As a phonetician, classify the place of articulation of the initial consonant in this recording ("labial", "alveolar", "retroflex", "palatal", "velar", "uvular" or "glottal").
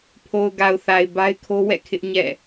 labial